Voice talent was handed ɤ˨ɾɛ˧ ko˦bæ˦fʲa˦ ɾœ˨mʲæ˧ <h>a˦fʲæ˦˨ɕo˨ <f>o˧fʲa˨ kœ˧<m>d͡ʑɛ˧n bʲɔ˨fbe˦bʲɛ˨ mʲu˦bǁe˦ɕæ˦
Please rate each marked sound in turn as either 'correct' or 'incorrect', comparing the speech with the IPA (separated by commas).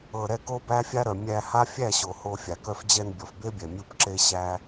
correct, incorrect, incorrect